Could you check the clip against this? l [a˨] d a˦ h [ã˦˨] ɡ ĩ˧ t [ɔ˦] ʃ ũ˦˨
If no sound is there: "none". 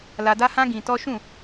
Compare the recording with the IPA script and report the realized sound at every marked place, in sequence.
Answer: a˧, ã˦, ɔ˦

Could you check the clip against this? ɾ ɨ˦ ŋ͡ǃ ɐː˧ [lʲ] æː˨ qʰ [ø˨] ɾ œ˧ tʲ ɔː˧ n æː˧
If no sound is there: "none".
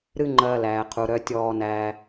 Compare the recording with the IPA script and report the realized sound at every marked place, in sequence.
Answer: l, u˨

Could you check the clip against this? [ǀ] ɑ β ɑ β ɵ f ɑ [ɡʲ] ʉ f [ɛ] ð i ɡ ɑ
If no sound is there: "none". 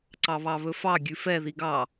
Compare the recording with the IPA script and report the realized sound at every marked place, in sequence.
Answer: ǀ, ɡʲ, ɛ

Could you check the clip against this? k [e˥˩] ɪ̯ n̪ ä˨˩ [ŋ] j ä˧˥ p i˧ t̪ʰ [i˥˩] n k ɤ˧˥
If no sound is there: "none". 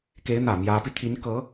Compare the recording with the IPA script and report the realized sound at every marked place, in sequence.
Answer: e˧˥, m, i˧˥

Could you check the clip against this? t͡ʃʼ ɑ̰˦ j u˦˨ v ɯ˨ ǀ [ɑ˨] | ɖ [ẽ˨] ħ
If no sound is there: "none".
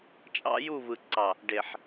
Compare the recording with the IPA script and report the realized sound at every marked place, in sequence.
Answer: ɑ˨, e˨

